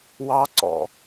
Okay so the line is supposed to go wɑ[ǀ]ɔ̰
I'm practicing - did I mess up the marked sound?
no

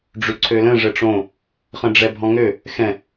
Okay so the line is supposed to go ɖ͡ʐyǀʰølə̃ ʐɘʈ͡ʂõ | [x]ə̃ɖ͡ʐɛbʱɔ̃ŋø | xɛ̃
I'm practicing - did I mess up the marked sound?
yes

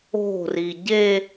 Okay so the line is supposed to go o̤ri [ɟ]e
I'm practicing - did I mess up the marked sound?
no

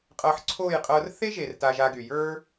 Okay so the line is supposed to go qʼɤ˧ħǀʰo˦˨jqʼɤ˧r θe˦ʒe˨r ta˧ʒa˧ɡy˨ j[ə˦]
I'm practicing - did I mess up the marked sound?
yes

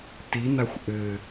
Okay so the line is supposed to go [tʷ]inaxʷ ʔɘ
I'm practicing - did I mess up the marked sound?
yes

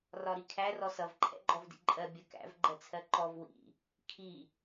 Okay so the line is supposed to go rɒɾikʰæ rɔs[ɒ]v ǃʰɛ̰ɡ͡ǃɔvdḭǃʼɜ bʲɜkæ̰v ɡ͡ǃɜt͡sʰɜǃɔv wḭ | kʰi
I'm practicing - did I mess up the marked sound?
yes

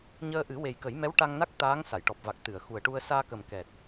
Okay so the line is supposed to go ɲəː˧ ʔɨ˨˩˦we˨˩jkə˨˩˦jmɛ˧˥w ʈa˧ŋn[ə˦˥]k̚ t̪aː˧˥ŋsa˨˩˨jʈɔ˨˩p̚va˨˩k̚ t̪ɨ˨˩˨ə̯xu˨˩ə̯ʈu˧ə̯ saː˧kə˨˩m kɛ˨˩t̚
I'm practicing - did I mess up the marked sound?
yes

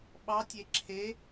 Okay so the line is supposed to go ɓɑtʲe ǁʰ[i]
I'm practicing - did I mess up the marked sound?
yes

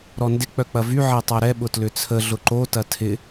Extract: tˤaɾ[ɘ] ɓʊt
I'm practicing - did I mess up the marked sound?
yes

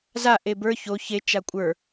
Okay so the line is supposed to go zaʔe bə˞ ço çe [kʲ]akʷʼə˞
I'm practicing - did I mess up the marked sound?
yes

